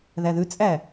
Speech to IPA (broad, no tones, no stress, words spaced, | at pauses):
ðæðʉt͡sʼæ